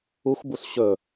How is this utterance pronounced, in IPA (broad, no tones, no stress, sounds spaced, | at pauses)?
u xʷ b u s ɕ ɵ